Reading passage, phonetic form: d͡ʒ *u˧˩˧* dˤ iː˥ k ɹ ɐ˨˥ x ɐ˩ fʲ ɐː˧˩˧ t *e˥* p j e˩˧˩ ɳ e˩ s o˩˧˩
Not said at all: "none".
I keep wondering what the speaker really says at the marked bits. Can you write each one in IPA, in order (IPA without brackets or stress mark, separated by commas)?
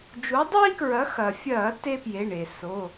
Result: u˨˥, e˥